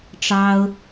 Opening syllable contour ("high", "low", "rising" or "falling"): high